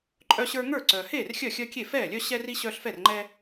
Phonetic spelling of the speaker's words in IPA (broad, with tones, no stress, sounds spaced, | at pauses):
ǃʼ œ˦ ɕ ə˞˦ ŋ ə˞˥˩ ǀ œː˩ h eː˥˩ r xʲ œ˥˩ xʲ œ˦ kʲ e˥˩ f ɛː˥˩ lʲ œ˦ ɕ ɛ˦ r i˦ ɕ œː˦ ɬ f ɛ˥˩ r ŋ͡ǃ ɛː˦